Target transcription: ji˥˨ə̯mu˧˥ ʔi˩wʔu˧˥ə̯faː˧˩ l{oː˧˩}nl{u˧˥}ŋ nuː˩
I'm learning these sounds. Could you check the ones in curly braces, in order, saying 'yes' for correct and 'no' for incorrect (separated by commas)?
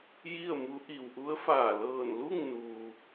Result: no, no